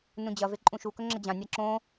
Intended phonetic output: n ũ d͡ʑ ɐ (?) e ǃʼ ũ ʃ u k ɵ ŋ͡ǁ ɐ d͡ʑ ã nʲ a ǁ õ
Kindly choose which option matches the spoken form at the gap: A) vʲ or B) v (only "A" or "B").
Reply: B